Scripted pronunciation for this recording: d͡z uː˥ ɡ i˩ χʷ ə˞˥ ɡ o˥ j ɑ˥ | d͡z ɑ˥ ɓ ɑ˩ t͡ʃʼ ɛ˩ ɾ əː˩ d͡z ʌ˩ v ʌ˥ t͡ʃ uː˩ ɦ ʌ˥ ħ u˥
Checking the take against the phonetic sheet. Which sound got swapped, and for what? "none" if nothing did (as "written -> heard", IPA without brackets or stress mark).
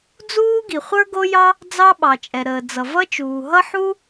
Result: none